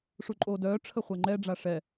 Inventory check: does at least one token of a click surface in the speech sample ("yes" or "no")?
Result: yes